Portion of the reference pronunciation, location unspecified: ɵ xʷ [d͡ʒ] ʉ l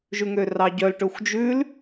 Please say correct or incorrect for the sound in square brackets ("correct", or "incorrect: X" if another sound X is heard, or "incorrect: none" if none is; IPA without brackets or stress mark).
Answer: correct